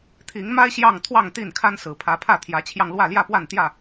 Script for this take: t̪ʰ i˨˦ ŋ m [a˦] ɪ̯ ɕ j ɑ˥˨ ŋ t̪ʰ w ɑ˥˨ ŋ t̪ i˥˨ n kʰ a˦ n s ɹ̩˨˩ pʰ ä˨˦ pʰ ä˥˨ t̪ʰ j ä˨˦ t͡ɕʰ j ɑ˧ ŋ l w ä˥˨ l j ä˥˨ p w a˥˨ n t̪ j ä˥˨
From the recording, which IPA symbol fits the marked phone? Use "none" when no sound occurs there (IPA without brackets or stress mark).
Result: a˦